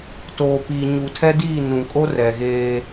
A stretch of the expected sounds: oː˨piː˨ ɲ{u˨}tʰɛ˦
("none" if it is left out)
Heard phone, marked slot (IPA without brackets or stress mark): u˨